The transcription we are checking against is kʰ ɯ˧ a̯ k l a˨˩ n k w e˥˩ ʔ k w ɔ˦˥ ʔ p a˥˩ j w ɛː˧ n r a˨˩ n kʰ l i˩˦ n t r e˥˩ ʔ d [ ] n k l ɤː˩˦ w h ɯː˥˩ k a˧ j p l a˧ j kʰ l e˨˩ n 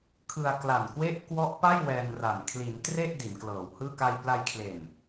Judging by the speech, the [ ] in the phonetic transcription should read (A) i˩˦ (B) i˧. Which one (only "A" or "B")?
A